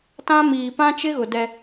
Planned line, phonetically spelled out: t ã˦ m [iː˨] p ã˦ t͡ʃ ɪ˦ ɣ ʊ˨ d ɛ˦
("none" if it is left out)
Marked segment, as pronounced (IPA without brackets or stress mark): iː˨